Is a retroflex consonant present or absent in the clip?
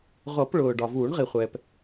present